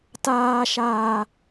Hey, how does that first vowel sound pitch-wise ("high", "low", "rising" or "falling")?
high